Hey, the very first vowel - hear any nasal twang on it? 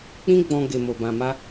yes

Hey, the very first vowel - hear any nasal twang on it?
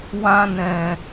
yes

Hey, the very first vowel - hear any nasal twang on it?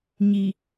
no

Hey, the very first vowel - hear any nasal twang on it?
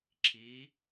no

